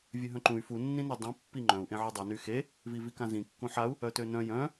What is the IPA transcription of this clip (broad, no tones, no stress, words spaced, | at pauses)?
vʲøɦœ̃ǃũy̯ funːĩnœ dˤĩ pːiŋ͡ǃœ̃u̯ʔẽ ʕudˤiny xe | vivikãzĩ kːũħau̯ | œtønœ̃ jœ̃